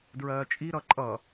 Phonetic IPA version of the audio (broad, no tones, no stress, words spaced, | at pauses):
dɹɜːt͡ʃʼiɾʌ ǃʼʌ